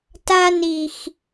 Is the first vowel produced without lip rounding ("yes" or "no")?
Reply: yes